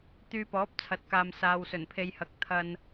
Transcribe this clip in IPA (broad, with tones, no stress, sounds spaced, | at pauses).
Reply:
t̪ yː˧ p ɔː˨˥ p̚ t͡sʰ ɐ˨˥ t̚ k aː˨ m s aː˨ w s ɵ˨˩ n pʰ e˨ j h ɐ˨˥ k̚ t̪ʰ ɐ˧ n